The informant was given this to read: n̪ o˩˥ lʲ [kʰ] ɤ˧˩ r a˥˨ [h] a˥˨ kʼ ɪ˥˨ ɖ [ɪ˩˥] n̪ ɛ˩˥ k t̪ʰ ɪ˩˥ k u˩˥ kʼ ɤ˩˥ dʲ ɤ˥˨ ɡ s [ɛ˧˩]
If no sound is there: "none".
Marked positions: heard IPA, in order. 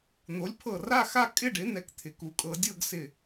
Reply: pʰ, x, ɪ˩˥, ɪ˧˩

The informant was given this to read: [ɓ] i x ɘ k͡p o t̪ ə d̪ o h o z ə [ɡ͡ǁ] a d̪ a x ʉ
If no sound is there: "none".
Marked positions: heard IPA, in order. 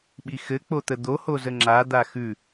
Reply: ɓ, ŋ͡ǁ

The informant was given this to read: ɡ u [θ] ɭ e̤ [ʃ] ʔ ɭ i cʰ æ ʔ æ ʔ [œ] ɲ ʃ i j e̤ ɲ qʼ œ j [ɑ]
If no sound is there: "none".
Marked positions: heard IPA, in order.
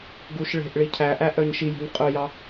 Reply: ʃ, none, œ, ɑ

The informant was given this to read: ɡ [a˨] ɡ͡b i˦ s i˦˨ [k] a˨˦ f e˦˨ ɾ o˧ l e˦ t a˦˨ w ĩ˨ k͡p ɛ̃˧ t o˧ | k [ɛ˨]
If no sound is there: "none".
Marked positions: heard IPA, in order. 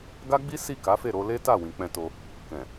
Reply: a˦, k, ɛ̃˨

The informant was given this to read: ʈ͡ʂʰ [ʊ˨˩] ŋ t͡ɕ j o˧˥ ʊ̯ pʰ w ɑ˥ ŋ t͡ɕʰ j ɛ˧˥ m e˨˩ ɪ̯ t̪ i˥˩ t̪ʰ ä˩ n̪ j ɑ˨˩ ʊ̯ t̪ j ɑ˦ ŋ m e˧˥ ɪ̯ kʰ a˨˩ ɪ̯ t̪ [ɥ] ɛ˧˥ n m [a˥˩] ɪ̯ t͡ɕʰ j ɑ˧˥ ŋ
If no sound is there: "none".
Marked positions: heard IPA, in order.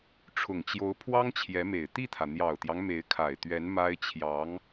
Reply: ʊ˨˩, ɥ, a˥

